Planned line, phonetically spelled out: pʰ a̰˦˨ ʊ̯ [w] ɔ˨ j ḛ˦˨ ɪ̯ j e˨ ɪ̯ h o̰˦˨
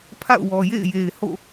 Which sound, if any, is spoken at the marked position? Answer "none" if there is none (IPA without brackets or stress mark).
w